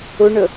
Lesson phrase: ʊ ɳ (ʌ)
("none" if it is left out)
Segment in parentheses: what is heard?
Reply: ə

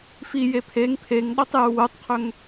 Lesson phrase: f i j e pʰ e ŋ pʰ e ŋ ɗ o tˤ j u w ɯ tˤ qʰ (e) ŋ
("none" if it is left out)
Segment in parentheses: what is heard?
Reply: ø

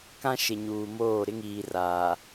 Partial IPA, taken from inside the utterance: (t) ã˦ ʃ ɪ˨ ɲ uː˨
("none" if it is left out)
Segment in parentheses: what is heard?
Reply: k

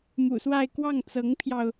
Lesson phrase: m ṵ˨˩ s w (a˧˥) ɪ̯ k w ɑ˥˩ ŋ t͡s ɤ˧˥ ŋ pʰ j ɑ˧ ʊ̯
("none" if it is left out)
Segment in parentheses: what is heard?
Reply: a˥˧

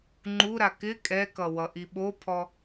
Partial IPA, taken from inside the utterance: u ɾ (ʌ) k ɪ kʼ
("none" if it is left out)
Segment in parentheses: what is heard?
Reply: a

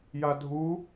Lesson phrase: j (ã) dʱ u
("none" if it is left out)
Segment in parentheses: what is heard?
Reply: a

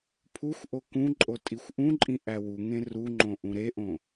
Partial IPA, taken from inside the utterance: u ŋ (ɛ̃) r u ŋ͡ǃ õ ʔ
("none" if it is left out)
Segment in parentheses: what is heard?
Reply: ẽ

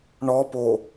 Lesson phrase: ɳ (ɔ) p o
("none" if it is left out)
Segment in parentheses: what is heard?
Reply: ɔ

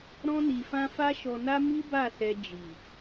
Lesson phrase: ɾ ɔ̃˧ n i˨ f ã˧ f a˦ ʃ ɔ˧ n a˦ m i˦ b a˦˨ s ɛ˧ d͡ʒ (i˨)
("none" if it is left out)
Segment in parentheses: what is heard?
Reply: i˨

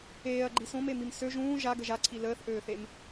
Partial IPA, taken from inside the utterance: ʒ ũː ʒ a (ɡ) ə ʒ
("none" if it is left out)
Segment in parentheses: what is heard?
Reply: ɡ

